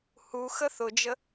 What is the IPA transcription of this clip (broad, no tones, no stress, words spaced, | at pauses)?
huxə θʊd͡ʒə